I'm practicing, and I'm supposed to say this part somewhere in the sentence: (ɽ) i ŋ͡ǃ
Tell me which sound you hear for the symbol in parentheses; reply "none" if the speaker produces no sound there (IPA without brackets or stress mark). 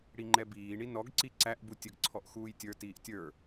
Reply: ɽ